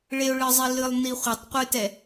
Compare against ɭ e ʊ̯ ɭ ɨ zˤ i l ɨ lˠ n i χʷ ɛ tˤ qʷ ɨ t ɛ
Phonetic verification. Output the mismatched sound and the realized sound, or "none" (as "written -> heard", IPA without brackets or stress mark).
none